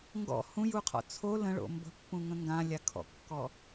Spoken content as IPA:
ŋ ɡ ɔ̰ h ũ j u qʰ ɔ̰ t͡sʰ o l ə̃ ɭ o̰ m b ə̤ pː ũ ŋ ə̃ ŋ ɡ ã lʲ a kʰ ɔ̰ kː ɔ

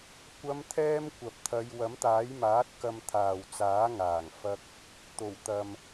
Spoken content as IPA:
kʷ ɐ˨˧ m t̪ʰ ɛː˧ m kʷ ɐ˨ p̚ t̪ʰ ɐ˨˧ j w ɐ˨˥ m t̪ aː˨˥ j m aː˨˥ t̚ k ɐ˧ m t̪ʰ aː˨ w t͡s aː˨˥ ŋ aː˨˩ ŋ f ɐ˧ k̚ | t̪ o˨˩ w t̪ ɐ˨ m

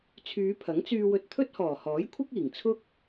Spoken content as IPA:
t͡sʰ yː˨˧ pʰ ɐ˨˥ ŋ t͡s yː˧ w ɵ˧ t̚ t̪ʰ ɵ˥ t̚ h ɔː˨˩ h ɔː˨˥ j kʷʰ ɪ˥ k̚ iː˨˩ ŋ t͡sʰ ʊ˥ k̚

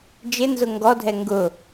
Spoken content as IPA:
d͡ʒ ɪ n z ʊ ŋ ɡ ɔ dʱ ɛ ŋ ɡ ʊ

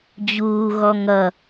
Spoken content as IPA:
d͡ʑ uː ɣ ɔ ŋ ʌ

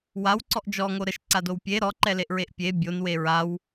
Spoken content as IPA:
w a w ǀ ɔ ʔ d͡ʒ ɔ ŋ o ɾ ə ʃ ǀ a d o w pʲ e ɾ ɔ ǃ ɛ l e ʔ ɹ e ʔ pʲ e bʲ o n w e ɹ a w

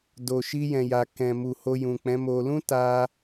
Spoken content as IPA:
d o˨ ʃ i˧ j ɛ̃˨ j a˨ k ɛ̃˨ m u˨ h o˧ j ũ˨ k͡p ɛ̃˨˦ m o˧ l ũ˦ t a˧

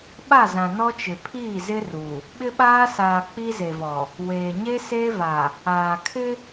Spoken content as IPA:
ɓ a˦˨ z ã˨ n ɔ˦ t͡ʃ ɪ˨ pʰ iː˦˨ z ɪ˦ r u˨ | ɓ ɪ˦ ɓ aː˦ s aː˨ k͡p i˦ z e˨ v ɔ˨ | w eː˨ ɲ e˦ s eː˦ v a˨ | aː˨ kʰ ɪ˦

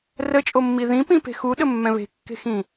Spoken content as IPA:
r ə t͡ʃʼ o mː i ð ĩ p ĩ p e̤ x u ɗ ə mː ɛ̃ β e̤ kː e̤ x ĩ

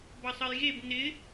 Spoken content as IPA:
b ʌ sˤ ə j ɣ e b n ɪ

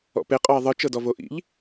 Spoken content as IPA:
ɔ̰ p e qʼ ɔ e̯ ðˤ ɯ t͡ʃ ɤ d ɔ v o ʔ ḭ ʎ

